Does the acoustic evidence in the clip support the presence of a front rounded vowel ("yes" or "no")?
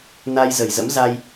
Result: no